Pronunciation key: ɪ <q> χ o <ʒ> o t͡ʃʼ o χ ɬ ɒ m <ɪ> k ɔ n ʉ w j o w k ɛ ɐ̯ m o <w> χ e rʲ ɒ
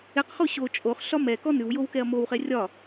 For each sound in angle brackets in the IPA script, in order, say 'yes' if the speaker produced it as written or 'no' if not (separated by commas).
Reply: yes, no, no, yes